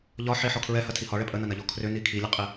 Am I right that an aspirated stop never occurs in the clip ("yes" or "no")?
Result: no